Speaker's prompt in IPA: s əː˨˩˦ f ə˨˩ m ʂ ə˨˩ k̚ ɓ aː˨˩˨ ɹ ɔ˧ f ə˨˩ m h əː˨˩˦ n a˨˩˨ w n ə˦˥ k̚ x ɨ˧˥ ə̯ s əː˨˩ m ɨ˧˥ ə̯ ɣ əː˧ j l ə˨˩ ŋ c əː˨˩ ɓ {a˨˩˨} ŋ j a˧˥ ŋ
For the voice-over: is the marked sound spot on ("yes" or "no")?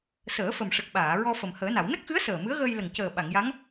yes